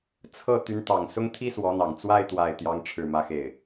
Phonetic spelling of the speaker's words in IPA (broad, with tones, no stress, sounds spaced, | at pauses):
t͡sʰ ɤ˥˩ t̪ y˧˥ n t̪ ɑ˨˩ ŋ s ʊ˥ ŋ t̪ʰ i˥ s w ɔ˧˥ n̪ ɑ˨˩ ŋ t͡s w a˥˧ ɪ̯ t̪ w a˥˩ ɪ̯ t̪ j ɑ˥ ŋ ʈ͡ʂʰ ɻ̩˥˩ m ä˥ x e˥˩ ɪ̯